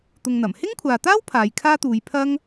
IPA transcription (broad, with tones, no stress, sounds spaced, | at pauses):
t̪ ʊ˧ ŋ n̪ ɐ˨˩ m h ɪ˥ ŋ kʷʰ aː˨ t̪ aː˥ w pʰ aː˨˧ j kʰ aː˥ t̪ uː˨˧ j pʰ ɐ˥ ŋ